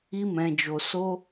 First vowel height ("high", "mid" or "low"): high